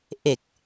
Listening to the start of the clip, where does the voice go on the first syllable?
low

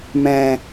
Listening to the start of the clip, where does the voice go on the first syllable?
low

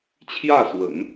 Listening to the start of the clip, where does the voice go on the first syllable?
falling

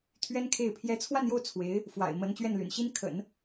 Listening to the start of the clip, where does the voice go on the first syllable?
high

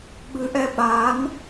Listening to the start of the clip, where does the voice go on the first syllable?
rising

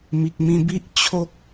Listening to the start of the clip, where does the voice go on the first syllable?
low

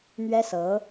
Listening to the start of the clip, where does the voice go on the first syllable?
high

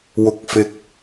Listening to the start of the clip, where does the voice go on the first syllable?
rising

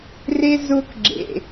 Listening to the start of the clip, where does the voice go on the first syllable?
high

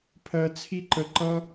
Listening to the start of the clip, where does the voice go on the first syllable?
high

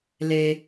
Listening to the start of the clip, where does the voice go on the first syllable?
low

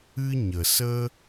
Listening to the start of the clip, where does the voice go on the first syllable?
high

